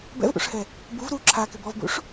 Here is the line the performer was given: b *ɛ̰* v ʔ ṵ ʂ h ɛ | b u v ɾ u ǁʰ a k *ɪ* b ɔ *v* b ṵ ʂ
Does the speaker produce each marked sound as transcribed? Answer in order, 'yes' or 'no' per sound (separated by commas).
yes, yes, yes